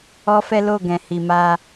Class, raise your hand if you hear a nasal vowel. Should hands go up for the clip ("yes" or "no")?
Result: yes